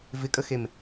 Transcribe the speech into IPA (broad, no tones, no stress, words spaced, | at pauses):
vɪkʼəxem